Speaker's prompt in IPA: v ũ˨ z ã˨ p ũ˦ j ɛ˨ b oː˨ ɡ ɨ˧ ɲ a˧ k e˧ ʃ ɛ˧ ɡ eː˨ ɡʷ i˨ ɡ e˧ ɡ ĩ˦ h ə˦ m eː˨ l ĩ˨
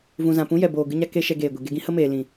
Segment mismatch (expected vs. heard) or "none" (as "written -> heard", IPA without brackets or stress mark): none